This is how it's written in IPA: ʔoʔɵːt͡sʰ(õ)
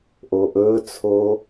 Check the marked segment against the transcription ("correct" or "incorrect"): incorrect